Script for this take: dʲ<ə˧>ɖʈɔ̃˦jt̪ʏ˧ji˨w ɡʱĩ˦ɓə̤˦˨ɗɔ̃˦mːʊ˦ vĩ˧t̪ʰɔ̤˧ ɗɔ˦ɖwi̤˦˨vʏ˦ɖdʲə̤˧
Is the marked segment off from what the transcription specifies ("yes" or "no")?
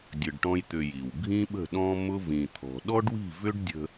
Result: no